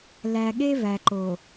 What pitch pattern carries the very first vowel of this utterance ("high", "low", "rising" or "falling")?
low